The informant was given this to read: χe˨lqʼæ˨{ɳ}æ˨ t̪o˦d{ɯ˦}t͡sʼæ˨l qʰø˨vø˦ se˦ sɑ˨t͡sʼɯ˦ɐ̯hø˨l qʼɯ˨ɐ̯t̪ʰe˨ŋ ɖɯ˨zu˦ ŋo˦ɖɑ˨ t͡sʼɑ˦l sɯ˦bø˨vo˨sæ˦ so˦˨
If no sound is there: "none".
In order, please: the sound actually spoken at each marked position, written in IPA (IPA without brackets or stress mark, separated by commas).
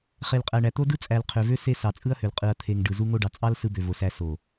ɳ, ɯ˦